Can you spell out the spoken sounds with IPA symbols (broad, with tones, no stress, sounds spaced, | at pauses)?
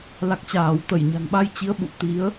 l a˨˩ k̚ t͡ɕ aː˧˩ w t̪ ə˧˩ j ɲ a̤˨˩ ŋ ɓ a˧ j t͡ɕ i˨˦ ə̯ ɓ ṵ˧˨ t̪ i˨˦ ə̯